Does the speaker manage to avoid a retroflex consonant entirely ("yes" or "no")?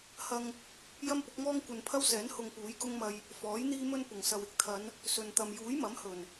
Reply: yes